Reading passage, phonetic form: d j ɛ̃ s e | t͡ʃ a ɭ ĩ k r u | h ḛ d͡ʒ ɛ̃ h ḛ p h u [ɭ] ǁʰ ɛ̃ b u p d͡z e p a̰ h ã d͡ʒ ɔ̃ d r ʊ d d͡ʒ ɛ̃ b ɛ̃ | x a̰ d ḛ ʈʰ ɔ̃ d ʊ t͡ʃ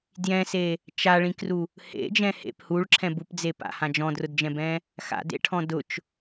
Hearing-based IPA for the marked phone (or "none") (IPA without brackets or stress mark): ɭ